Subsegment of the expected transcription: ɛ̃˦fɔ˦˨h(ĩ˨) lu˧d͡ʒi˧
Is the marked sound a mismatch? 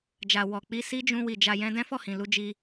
no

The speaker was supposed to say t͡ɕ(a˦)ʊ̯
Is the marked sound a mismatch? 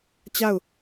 yes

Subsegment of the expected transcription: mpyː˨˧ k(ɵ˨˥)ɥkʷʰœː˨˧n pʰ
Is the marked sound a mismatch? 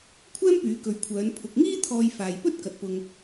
yes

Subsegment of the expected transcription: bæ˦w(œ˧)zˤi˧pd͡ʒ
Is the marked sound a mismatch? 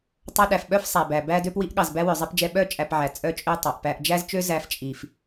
yes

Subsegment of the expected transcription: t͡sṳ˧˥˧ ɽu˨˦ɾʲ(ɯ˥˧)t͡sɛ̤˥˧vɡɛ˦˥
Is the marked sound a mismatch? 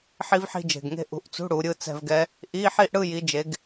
no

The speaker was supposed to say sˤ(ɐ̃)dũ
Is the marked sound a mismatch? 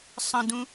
yes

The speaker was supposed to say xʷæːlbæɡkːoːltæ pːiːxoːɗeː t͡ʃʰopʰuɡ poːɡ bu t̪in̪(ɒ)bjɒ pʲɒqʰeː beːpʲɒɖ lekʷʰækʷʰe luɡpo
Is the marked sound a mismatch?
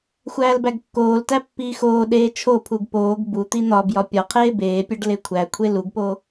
no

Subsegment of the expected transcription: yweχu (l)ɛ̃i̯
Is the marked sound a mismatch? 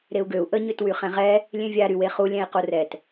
yes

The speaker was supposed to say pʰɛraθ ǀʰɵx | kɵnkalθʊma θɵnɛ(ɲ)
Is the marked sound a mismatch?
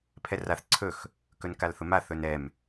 yes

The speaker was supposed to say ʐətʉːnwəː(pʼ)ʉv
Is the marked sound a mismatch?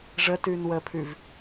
yes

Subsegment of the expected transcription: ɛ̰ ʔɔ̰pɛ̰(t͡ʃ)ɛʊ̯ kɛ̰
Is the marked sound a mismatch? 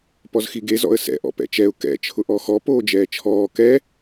no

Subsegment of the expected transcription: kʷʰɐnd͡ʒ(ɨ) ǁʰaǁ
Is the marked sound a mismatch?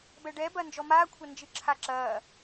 no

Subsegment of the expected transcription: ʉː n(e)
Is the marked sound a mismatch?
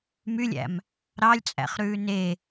no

